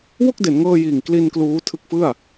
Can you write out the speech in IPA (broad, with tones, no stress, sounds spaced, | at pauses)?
w o˥˩ k̚ d e˩˦ n ŋ ɤː˧ j iː˨˩ ŋ k l i˧ n k l uː˦˥ tʰ ɯ˦˥ k̚ f ɯ˥˩ a̯